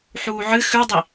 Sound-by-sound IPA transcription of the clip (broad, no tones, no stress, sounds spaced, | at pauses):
ħ uː ʕ ɨ x ʉ dˤ i